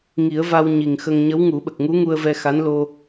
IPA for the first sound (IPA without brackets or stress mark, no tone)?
ŋ